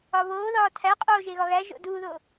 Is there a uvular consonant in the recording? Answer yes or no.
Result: yes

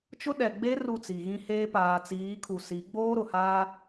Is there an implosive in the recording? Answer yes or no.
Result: yes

